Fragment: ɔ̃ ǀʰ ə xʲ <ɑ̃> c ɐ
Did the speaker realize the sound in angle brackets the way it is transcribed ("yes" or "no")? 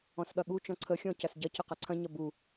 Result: no